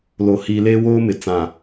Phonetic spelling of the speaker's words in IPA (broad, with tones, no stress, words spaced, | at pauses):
lo˨hiː˨ leː˦woː˦mɪ˨ t͡sã˨